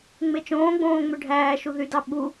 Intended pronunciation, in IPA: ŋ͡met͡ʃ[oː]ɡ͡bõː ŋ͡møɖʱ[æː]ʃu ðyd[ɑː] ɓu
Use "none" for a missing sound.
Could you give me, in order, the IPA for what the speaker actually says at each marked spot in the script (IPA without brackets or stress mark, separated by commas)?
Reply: õː, æː, ɑ